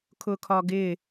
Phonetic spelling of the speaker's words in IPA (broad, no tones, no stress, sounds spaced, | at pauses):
kʰ ʊ kʰ ɒ ɡ ɪ